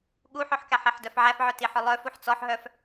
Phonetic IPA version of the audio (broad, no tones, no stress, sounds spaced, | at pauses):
ɠ u ħ œ ħ k æ ħ e ħ d œ f ʕ æ f ʕ œ t i ħ œ lˠ œ f u ħ t͡s ɔ ħ ɦ œ f